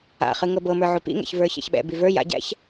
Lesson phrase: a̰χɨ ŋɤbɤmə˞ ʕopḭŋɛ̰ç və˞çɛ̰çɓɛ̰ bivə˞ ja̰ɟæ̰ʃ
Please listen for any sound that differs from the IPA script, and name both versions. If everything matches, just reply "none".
ʃ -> ç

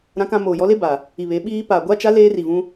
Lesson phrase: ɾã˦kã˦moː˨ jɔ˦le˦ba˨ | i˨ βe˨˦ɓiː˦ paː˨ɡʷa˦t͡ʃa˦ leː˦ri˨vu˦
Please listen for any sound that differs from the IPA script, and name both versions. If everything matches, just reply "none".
u˦ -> ũ˦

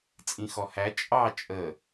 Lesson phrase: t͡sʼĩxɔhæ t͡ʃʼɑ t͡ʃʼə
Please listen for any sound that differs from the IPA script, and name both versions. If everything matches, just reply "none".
none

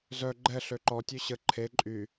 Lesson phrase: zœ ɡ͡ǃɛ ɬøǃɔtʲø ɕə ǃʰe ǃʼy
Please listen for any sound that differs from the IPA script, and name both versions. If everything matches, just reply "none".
none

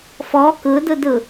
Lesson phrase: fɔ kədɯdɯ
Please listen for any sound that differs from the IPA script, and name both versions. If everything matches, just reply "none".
ə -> ɯ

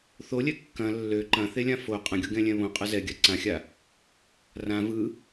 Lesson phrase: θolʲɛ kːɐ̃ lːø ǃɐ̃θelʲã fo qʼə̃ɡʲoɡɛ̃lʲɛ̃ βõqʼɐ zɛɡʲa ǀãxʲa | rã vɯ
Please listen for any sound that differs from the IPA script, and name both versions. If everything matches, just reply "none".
none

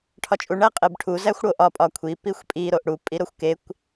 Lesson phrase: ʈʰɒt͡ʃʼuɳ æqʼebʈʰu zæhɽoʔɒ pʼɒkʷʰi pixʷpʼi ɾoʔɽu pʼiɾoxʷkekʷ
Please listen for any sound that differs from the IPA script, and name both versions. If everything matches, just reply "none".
h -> xʷ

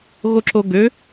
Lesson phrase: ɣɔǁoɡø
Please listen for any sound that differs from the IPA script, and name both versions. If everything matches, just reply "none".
ɔ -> o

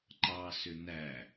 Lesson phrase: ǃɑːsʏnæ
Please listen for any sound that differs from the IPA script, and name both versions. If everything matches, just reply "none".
none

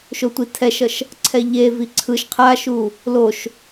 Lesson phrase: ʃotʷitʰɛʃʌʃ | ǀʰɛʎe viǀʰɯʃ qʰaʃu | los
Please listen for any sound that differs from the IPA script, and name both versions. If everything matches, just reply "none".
s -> ʃ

